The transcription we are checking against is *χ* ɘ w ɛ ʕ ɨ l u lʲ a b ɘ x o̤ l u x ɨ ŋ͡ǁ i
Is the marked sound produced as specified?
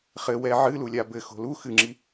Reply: yes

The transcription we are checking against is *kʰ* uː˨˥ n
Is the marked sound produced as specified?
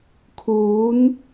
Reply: yes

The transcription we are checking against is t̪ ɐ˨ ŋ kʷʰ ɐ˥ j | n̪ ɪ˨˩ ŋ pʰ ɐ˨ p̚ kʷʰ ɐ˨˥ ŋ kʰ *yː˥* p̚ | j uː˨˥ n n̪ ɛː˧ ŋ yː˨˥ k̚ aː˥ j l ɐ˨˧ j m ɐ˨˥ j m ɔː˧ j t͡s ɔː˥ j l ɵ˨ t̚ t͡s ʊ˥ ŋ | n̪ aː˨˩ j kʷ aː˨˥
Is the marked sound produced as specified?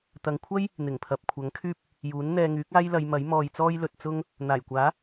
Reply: yes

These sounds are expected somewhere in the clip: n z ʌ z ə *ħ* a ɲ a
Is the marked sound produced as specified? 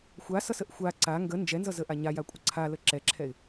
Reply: no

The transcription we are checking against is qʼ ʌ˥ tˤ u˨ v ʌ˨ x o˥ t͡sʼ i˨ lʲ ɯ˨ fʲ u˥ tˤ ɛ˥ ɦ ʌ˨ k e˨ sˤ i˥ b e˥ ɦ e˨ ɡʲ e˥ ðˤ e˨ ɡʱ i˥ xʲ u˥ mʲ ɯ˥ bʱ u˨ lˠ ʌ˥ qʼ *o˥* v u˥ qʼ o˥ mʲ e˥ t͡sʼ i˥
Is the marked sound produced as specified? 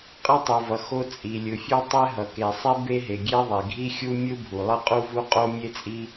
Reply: no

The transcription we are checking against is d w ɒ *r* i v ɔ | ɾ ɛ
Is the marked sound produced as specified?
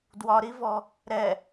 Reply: no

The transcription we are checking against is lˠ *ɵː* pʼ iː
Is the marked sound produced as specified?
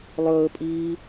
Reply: yes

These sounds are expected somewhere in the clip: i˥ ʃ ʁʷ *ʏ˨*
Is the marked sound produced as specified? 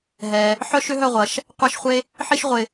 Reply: no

